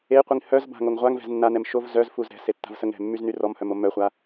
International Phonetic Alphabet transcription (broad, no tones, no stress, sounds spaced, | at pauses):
e qʷ i ŋ h œ z b a̤ ŋ o ŋ ʁʷ a ŋ v ɛ̤ z nː a n ɛ m ʃ o v z œ z f u z ɾ ɛ̤ s e tː a̤ v s ə ŋ ɾ ɛ̤ mː y z n y r ɔ m h œ m o m œ χʷ a